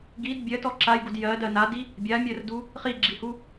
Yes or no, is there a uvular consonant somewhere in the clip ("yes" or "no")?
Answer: yes